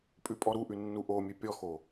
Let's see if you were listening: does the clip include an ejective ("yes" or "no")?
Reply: yes